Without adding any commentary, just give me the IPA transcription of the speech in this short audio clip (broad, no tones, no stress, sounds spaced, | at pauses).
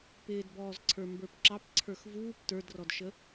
p ɪː d b ɔː z ǀʰ ə˞ m b ə˞ p ǁ ɑ p ǀʰ ə˞ x v uː p t ə˞ d r ɔ d ʃ ə